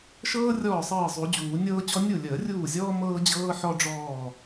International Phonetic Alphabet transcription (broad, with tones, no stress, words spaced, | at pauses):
ʃɤː˥ rʲɔː˥˩sˤɤː˥˩zˤu˨˩˦d͡ʑuː˨˩˦ nʲɤː˥t͡ɕɔ˥ nʲu˥˩lʲəː˨˩˦rʲuː˥˩zʲɔː˥ mɤː˥d͡ʑɤː˥ ħɔ˥ɖ͡ʐɔː˥˩